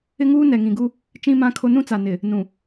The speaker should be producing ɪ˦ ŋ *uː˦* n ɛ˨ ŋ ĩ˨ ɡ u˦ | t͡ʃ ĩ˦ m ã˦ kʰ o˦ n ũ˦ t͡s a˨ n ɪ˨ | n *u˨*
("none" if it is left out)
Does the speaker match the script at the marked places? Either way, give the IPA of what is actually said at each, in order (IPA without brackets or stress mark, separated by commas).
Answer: uː˦, ũ˨